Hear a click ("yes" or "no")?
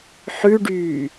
no